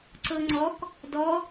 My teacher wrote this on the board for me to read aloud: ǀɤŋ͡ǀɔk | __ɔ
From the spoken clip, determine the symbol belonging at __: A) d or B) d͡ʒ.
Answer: A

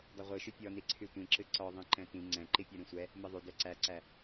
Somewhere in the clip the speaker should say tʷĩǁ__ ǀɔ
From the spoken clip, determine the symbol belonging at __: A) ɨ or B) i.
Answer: A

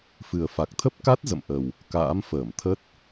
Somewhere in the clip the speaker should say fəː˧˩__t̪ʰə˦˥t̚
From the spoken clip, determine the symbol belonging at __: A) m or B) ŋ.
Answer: A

